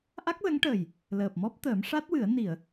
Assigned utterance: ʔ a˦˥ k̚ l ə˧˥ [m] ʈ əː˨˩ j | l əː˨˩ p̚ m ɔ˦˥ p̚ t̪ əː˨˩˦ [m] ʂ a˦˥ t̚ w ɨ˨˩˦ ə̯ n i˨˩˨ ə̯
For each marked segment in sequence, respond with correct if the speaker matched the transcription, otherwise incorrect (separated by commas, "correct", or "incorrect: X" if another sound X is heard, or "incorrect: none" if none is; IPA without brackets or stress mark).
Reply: incorrect: ŋ, correct